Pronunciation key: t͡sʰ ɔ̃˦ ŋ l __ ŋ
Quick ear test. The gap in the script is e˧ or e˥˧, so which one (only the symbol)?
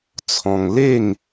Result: e˥˧